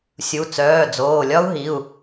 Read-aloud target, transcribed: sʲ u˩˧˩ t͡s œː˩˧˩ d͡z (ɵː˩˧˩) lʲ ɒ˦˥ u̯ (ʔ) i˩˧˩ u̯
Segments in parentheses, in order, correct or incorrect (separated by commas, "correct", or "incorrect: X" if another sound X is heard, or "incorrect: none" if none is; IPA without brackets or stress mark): incorrect: oː˩˧˩, incorrect: ɦ